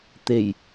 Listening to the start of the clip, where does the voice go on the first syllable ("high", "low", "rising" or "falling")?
low